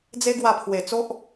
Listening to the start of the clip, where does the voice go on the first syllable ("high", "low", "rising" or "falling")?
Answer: high